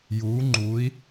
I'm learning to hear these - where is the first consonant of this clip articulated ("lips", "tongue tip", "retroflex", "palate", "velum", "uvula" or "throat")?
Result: palate